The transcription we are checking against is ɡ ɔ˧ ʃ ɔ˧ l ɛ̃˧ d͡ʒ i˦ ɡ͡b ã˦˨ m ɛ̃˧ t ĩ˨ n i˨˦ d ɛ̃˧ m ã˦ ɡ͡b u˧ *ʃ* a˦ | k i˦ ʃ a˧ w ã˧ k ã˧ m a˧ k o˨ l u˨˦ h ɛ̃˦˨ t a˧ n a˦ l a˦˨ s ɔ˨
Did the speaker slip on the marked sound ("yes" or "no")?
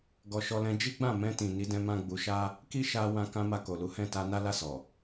no